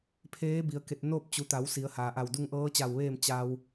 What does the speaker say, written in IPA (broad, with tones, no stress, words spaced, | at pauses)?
pʰeː˧˥bi˩ə̯ ke˧˩t̚noː˥˨p̚t͡ɕu˩˧t̪a˩˧w si˩˧ə̯haː˩ʔa˧˩w du˧ŋ ʔɤː˧˥t͡ɕa˧˩wʋeː˥˨m t͡ɕa˧w